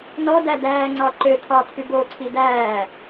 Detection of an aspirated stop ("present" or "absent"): present